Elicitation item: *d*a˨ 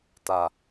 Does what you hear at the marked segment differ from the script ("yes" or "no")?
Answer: yes